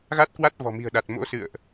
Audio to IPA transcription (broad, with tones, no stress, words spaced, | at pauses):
ɣa˦˥t̚kwa˦˥t̚vɔ̤˨˩mi̤˨˩ə̯ ɗa˨˩t̚mo̰˧˥sɨ̰˧˨ə̯ʔ